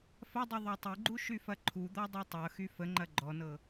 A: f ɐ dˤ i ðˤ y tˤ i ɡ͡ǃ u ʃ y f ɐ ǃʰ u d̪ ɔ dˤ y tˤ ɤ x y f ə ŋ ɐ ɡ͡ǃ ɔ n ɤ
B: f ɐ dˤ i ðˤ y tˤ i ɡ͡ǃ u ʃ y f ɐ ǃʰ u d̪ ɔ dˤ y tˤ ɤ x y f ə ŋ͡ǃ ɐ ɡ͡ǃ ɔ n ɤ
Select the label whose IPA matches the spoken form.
B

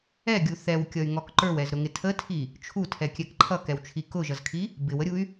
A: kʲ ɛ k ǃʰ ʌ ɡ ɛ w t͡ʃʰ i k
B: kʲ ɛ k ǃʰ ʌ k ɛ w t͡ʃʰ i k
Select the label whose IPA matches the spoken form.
B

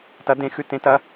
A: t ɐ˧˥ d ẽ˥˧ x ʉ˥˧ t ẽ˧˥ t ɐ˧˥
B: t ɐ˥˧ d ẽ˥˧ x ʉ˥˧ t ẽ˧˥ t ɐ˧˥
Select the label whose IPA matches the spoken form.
A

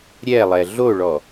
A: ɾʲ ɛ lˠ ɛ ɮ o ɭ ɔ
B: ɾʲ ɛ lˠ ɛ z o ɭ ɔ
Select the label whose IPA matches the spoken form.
A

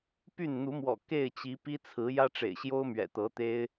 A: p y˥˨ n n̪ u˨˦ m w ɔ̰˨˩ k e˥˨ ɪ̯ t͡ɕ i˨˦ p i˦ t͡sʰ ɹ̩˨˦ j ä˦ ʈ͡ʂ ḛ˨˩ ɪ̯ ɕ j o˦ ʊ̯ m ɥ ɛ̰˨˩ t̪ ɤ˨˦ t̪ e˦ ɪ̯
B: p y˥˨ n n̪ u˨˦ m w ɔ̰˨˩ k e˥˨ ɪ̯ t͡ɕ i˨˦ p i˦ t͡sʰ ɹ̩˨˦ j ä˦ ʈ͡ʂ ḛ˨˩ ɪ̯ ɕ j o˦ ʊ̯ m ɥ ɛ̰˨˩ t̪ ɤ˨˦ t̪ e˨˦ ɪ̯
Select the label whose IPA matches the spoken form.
A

